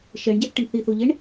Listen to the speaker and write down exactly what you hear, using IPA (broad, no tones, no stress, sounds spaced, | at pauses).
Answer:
ʃ ɛ ɳ ɟ ɛ θ ʈ ɪ ɳ θ i θ o ʎ e ɳ